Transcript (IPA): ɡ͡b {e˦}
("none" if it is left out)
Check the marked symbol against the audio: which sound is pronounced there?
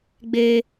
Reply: eː˦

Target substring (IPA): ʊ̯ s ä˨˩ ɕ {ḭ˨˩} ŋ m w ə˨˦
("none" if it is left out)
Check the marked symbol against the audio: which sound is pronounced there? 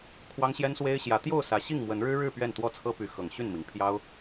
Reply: i˥˨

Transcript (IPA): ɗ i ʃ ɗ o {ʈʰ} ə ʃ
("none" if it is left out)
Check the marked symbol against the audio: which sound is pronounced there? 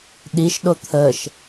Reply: t̪ʰ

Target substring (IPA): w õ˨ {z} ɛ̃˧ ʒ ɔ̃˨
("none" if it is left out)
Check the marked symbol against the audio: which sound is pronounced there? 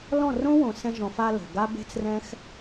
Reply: s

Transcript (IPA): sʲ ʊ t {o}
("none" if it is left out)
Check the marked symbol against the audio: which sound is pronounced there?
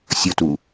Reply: u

